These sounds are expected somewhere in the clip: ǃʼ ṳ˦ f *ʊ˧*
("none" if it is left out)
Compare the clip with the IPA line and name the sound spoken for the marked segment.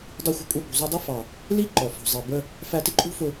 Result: ʊ˧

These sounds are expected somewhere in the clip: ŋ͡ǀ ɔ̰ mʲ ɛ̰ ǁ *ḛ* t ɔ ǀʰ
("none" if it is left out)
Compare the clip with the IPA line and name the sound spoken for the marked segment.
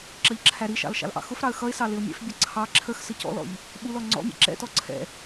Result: ɛ̰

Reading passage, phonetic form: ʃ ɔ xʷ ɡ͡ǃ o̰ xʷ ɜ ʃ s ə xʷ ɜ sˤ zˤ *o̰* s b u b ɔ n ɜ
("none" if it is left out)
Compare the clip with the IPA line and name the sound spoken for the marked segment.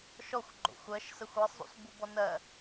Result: ṵ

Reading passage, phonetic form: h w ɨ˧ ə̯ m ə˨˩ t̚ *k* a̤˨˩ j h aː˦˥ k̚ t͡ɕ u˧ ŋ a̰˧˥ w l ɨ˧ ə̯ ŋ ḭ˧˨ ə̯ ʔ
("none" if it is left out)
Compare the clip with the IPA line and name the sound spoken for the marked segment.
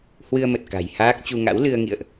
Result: k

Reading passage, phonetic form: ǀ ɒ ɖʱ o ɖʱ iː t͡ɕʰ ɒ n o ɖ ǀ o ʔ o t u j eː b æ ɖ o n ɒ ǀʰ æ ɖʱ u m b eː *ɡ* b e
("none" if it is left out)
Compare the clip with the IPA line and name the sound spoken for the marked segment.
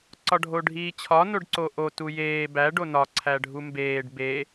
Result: ɖ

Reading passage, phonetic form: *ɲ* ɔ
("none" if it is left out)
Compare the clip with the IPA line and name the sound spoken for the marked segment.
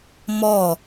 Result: m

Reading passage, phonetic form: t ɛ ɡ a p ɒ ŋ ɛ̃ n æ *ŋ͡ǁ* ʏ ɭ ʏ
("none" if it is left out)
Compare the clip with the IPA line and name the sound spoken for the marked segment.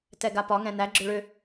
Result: ɡ͡ǁ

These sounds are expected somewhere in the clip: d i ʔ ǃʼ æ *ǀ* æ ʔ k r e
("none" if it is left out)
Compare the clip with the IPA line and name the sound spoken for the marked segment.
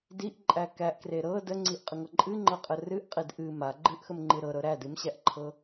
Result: k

